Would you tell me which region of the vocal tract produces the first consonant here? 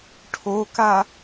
retroflex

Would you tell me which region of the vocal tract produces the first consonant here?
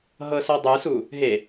throat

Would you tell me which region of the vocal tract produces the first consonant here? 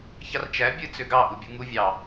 palate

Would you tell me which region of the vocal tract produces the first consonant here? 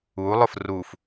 tongue tip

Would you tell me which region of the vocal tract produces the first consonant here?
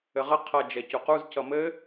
uvula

